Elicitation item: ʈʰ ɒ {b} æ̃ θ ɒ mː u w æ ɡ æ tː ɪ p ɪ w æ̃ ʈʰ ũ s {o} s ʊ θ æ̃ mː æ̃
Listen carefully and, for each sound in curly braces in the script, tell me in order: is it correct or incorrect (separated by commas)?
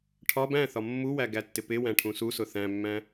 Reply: correct, incorrect